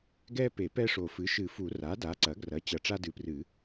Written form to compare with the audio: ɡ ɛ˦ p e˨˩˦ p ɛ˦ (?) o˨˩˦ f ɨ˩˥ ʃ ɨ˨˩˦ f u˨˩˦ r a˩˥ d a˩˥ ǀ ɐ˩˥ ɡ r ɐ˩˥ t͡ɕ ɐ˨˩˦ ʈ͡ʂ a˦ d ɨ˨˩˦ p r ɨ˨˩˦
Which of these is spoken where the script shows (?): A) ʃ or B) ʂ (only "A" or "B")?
B